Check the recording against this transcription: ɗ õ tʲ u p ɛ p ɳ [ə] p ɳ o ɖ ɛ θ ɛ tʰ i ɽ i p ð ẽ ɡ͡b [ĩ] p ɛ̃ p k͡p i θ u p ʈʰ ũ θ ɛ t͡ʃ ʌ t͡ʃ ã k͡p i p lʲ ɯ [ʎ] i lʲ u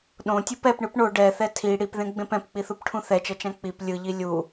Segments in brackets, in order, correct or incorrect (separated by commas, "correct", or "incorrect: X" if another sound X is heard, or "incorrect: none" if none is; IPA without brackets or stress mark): incorrect: ɯ, incorrect: ẽ, correct